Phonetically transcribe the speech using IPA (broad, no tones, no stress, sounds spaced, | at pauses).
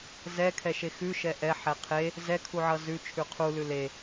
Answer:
z ɛ kʰ ɛ ʃ e x ʉ ʃ ɛ ʔ ɛ ħ ɛ qʰ e | z ɛ kʰ u ʕ ʌ z ʉ t͡ʃʰ ʉ qʰ u l ʉ l e